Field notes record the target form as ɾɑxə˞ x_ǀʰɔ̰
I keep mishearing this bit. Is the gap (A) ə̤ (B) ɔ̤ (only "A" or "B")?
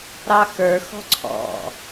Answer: B